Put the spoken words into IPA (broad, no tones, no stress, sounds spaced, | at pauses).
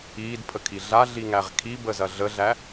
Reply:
iː d pʰ ə kʰ i ɮ a ɮ i ŋ æ ʁ kʰ i b ə z ɐ ɮ ə ɮ æ